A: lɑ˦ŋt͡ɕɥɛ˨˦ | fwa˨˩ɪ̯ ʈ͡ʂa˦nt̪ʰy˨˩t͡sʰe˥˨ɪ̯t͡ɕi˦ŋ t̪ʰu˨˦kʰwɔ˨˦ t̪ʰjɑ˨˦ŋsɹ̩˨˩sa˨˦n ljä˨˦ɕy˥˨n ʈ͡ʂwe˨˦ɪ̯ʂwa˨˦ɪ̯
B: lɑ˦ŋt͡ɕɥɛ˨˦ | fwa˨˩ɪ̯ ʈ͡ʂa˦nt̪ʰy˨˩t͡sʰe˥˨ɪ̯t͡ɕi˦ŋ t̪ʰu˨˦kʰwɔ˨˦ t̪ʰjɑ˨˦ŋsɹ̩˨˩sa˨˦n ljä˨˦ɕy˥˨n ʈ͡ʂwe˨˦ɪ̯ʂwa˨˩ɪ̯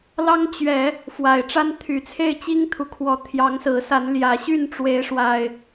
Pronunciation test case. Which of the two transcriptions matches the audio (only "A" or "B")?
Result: B